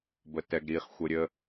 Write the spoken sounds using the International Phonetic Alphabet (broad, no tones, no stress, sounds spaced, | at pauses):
b ə t ɛ ɡ ɾ i χ xʷ ə ɾʲ ə